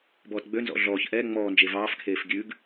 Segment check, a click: absent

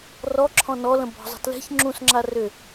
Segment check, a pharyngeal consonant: absent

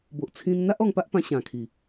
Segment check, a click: absent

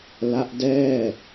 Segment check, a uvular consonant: absent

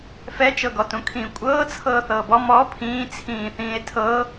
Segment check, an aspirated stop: present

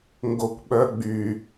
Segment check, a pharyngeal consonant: absent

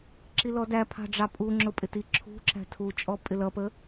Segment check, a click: present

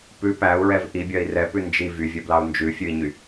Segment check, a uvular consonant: absent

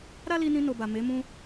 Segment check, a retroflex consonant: absent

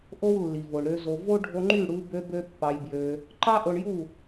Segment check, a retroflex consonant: present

